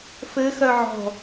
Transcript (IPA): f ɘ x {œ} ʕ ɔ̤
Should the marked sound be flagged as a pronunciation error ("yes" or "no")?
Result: no